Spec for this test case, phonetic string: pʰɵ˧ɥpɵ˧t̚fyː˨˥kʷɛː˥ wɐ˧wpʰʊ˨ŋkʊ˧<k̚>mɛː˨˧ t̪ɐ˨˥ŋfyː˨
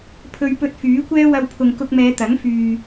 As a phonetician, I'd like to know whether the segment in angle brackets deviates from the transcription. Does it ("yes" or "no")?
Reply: no